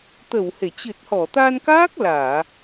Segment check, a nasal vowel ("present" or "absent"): absent